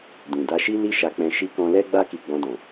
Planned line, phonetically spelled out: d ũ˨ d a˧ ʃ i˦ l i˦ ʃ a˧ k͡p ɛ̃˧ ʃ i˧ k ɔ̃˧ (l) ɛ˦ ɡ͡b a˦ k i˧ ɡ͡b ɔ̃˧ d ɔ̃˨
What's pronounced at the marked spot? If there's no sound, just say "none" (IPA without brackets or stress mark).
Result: l